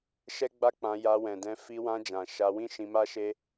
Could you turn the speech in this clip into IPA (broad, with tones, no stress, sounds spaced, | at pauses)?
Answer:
ʃ ɛ˦ ɡ͡b a˦ k͡p ã˧ j a˧ w ɛ̃˨ d ɛ̃˧ f i˧ w ã˧ d͡ʒ ã˨ ʃ a˧ w ĩ˦ ʃ ĩ˧ m a˦ ʃ e˦